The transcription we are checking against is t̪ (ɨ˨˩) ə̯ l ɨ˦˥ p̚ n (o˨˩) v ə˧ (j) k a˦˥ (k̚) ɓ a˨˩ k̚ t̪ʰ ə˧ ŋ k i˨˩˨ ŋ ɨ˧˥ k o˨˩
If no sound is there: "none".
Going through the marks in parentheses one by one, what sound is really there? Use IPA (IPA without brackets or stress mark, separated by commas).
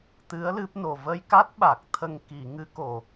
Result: ɨ˧˥, o˨˩, j, t̚